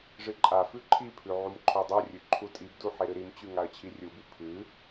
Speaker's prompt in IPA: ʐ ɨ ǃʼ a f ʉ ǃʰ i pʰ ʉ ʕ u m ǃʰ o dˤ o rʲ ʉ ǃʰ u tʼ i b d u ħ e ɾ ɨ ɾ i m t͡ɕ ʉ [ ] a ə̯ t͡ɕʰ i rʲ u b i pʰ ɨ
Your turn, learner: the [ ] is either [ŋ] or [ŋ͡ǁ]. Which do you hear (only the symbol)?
ŋ